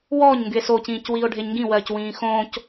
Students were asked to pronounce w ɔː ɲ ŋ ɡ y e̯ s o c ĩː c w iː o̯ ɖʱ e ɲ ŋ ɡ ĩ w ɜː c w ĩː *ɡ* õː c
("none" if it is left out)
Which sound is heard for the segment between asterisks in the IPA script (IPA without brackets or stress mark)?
x